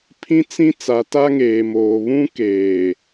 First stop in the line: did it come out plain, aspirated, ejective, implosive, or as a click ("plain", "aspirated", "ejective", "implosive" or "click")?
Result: aspirated